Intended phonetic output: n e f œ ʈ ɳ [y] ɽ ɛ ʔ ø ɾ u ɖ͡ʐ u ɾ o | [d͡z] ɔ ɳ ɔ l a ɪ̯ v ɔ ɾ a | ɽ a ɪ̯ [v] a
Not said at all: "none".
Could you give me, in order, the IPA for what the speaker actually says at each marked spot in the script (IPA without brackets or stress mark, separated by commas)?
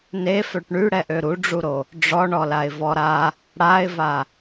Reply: y, ɖ͡ʐ, v